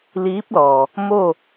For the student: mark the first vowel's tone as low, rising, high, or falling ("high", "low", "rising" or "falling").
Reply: rising